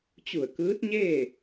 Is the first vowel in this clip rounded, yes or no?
yes